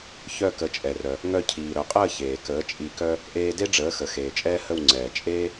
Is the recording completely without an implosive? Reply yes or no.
yes